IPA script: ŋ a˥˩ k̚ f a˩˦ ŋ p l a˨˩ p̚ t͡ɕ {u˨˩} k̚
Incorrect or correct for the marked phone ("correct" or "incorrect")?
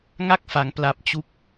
incorrect